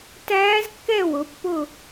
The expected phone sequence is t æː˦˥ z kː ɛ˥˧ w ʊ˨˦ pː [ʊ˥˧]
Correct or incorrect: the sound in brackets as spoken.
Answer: correct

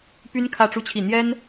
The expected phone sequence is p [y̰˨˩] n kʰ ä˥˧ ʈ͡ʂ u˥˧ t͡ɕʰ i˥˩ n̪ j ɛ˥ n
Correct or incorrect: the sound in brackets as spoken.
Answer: incorrect: y˥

